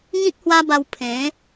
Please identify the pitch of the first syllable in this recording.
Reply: high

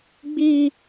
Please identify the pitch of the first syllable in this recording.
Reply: high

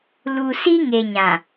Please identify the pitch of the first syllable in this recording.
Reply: low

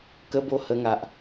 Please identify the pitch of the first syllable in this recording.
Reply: high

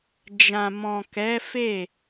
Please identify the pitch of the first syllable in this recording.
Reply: low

